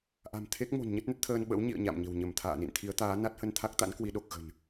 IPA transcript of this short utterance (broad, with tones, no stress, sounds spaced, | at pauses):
ʔ a̤˨˩ m t̪ʰ e˦˥ k̚ m o̤˨˩ n ɲ ə˦˥ t̚ n ə˦˥ t̚ t̪ʰ əː˧ n ɓ ə̰˧˥ w ɲ ḭ˧˨ ə̯ ɲ a̰˧˨ m ɲ ə̤˨˩ w ɲ ə˧˩ m t̪ʰ a̰ː˧˨ n ḭ˧˨ n t̪ʰ i˨˦ ə̯ t̪ aː˨˦ n a˦˥ t̚ h ə˧ n t̪ʰ a˦˥ k̚ t̪ a̰˧˥ n k w i˨˦ ɗ o˨˩ k̚ ɣ ə̤˨˩ n